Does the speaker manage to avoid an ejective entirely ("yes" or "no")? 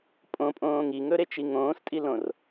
no